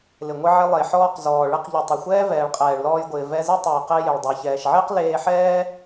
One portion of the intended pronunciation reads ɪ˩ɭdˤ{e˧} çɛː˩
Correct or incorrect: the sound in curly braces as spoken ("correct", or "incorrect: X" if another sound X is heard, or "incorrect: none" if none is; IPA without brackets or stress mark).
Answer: incorrect: e˩